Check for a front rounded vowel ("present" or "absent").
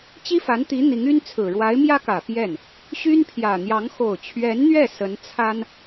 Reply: present